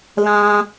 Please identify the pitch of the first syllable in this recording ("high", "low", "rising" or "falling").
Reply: high